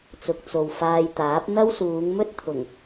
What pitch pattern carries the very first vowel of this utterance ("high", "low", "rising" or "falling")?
low